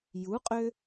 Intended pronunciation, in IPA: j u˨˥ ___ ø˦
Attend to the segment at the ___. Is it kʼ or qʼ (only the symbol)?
qʼ